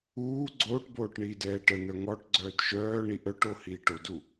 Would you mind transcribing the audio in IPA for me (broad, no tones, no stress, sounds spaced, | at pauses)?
uː ɡ͡ǀ oː ʈ b oː ʈ ɳ iː d ɛː ʈ ə n̪ œ ŋ ɔ ʈ ɡ͡ǀ œː d ʃ œː ɳ i ʔ œ ʈ o h iː ʈ o d u